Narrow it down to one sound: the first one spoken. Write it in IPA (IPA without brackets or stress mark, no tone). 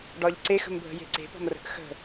ɖ